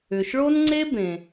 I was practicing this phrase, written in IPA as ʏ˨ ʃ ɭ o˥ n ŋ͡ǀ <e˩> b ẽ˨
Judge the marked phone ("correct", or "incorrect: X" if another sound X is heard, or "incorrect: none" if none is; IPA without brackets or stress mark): incorrect: e˥